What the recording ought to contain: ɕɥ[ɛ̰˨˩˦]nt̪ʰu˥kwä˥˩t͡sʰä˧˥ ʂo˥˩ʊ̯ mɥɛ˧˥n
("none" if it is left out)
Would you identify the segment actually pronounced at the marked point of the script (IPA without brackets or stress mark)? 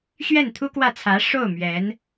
ɛ˥˩